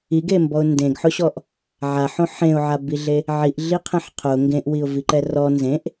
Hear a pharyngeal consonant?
yes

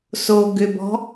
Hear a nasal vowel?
no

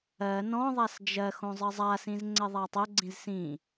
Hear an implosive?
no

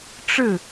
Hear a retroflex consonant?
yes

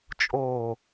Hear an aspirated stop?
no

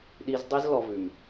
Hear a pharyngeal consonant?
no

